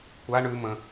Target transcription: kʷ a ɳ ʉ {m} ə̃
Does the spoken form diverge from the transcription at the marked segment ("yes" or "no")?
no